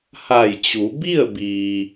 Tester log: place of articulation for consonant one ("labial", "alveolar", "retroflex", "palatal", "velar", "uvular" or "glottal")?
glottal